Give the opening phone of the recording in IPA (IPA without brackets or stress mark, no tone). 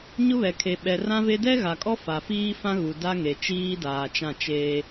ɲ